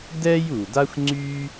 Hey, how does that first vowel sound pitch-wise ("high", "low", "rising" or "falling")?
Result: high